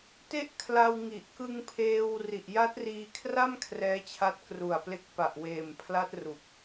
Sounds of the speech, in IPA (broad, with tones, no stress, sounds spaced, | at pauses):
t e˥˩ ʔ kʰ l a˧ w ŋ i˨˩ ʔ k ɯ˧ ŋ pʰ eː˧ w r i˨˩ ʔ j a˦˥ t̚ r iː˧ kʰ r a˥˩ m kʰ r ɛː˦˥ t͡ɕʰ a˦˥ t̚ k r u˨˩ a̯ p l e˦˥ k̚ p a˨˩ ʔ w eː˨˩ m pʰ l a˦˥ t̚ r u˨˩ k̚